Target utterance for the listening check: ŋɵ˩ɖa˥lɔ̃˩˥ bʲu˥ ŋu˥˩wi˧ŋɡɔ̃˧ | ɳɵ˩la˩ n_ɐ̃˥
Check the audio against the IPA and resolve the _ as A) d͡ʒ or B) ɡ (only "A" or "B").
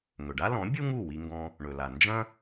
A